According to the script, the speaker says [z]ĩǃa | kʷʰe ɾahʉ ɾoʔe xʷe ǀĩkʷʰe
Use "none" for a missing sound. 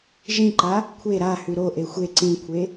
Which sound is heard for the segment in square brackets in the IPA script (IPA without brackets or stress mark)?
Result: ʒ